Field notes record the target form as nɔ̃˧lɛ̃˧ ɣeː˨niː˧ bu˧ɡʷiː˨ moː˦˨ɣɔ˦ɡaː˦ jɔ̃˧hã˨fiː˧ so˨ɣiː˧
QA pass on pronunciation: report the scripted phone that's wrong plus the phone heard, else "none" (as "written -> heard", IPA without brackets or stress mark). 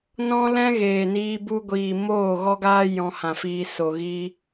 none